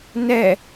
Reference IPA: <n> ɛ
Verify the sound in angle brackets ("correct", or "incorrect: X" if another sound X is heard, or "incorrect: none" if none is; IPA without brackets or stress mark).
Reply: correct